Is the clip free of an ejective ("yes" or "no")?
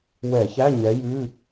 yes